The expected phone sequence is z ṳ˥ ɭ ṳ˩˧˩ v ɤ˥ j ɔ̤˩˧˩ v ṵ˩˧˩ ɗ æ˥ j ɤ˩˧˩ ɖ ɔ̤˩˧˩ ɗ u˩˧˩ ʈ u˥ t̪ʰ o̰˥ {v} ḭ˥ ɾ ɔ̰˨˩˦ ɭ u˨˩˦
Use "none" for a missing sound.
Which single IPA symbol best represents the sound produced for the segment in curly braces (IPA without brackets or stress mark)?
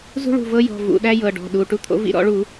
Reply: v